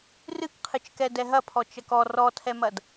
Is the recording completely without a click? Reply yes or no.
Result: yes